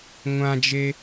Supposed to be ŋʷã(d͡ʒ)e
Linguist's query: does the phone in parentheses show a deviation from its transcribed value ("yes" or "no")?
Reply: no